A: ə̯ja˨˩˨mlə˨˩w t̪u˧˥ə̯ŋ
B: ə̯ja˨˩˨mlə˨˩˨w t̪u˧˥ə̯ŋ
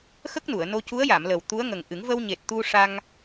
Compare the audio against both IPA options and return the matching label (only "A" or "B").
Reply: A